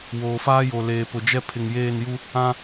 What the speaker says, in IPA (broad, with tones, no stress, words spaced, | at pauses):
woː˨faː˦jo˨ leː˨pʊ˨d͡ʒɛ˦ pʰɪ˨ŋjeː˦˨nju˦ | ã˦